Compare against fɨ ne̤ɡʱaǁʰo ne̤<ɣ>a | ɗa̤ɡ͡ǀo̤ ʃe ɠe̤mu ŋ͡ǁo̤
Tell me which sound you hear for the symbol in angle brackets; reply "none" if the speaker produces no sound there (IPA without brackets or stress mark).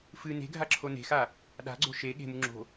x